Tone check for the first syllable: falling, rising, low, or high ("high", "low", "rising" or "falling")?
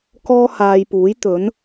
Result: high